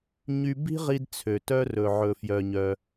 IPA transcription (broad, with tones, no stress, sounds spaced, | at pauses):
ɲ y˧ b i̤˥ ʁ i˧ d t͡sʰ ø˩ t œ˧ r ɵ˩ ʕ ɵ˩ f j œ˩ ɲ œ˩